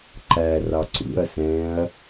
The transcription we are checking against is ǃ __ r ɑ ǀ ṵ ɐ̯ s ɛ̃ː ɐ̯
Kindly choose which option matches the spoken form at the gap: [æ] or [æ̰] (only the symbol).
æ